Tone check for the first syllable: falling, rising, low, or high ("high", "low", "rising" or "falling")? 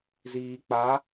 low